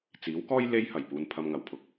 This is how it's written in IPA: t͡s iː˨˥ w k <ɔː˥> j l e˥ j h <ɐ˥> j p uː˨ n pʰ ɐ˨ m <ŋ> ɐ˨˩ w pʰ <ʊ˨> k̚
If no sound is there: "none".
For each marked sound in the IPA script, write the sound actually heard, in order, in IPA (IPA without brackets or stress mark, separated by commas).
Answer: ɔː˥, ɐ˨˩, ŋ, ʊ˨